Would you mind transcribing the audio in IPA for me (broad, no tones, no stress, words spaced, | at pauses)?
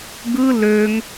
ɡɯ løŋ